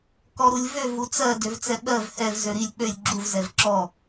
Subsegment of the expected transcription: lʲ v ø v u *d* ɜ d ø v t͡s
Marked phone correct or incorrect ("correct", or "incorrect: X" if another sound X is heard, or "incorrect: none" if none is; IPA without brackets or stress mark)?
incorrect: t͡s